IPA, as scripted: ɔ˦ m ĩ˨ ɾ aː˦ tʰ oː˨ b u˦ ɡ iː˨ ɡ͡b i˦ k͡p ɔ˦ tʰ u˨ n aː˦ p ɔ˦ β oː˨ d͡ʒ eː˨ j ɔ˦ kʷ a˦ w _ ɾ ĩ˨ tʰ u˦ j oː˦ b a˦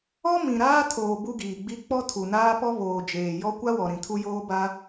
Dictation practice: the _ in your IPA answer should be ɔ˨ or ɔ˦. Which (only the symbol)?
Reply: ɔ˨